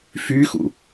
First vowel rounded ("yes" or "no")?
yes